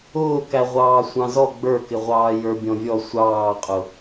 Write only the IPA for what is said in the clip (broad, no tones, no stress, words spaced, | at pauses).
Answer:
ʊː kæʁʷɑːsʷɑ̃zɔ ɡ͡bə˞kɪ ʁʷɑːjə˞bʲɔ̃vʲɔ sʷɑːqʼʊ